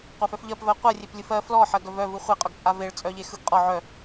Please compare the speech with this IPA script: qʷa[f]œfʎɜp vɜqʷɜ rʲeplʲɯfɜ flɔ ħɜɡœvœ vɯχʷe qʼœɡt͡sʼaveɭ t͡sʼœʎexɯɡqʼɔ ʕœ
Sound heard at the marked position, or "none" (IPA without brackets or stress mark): f